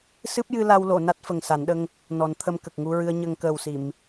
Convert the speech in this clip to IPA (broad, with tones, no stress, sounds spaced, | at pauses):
s ɨ˦˥ p̚ j ɨ˧ l a˧ w l o˨˩˨ n a˦˥ t̚ f ə˨˩ ŋ s a˨˩˦ n ɗ ə˧ ŋ | n ɔ˨˩˦ n t̪ʰ ə˧ m k ə˨˩ k̚ ŋ u˧ ɹ ɨ˧ ə̯ ɲ ə˧ ŋ k əː˨˩ w s i˨˩˨ m